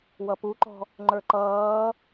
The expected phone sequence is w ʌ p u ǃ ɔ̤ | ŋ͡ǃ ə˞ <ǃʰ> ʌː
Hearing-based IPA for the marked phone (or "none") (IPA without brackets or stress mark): ǃ